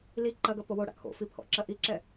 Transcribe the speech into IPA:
l i ǃ ɐ ɡ ɐ p o w o ɽ a̰ kʰ o̰ f i pʰ ɔ̰ ǁ ɐ ʔ i ǁ ɛ

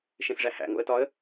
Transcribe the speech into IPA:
ʃ ẽ s ʐ æ h æ̰ ŋ o̰ ə̯ t ɒ ə̯

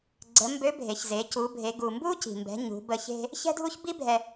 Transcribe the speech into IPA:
ɡ͡ǀ ə˩˧ m b ø˧˥ bʱ e˩˧ ç z e˩˧ c u˩˧ bʱ e˩˧ ɡ u˩ m b u˥ c i̤˩ m b ɛ̤˩˧ ɲ ṳ˩˧ b ə˧ ç e̤˥ | ç ɛ̤˥ dʱ u˥ ç b i˥ bʱ ɛ˧

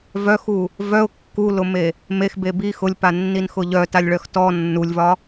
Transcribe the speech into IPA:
v œ x u | v œ ʊ̯ kː u l ʊ m e | m e x b e b i x ʊ lʲ p a nː i n x ʊ ʎ œ t a lʲ ɭ œ x t ɔ nː u lʲ v ɒ

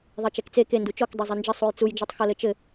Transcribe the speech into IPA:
ðˤ e t͡ʃ ɛ k t͡s e k e n d u t͡ʃ ɔ k dˤ ɛ zˤ e n d͡ʒ ɘ sˤ u j t͡s u j d͡ʒ u tˤ x ɔ l ɘ t͡ʃ ɘ

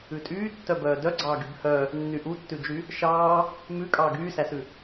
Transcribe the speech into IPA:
ʉ tʼ yː tː œ b œː d œ ɡ͡ǀ ɑː ɡ y b h œ | nː y ʔ u tː ʉ d͡ʒ y | ʃ ɑː | m ʉ kʼ ɑː ɡ yː s æ s ʉ

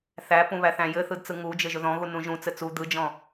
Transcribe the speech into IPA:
θ æ p ũ β æ θ æ̃ j ɘ θ ɯ d t͡s ɯ ŋ u d͡ʒ ɘ ʒ ɵ ð ɔ̃ ɣ u n ũ ʒ ũ t͡s ɘ t͡s u d̪ ɯ d͡ʒ ɔ̃

